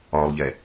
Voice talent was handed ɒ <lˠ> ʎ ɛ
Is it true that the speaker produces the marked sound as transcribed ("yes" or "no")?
yes